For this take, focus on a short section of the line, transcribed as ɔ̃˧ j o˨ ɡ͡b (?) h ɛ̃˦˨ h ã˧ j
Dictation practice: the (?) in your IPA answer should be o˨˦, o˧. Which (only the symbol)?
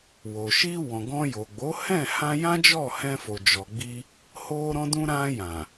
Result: o˨˦